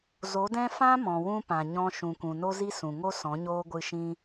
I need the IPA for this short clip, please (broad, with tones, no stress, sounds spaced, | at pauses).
z o˨˦ d ɛ̃˦ f ã˦ m ɔ̃˨ w ũ˧ p ã˨ ɲ ɔ̃˧ ʃ ũ˨ kʷ ũ˨ n o˦ z i˦ s ũ˨ ŋ o˦ s ɔ̃˨˦ ɲ oː˦ ɡʷ ɨ˧ ʃ ĩ˦